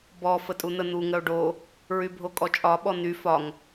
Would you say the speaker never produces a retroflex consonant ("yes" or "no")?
no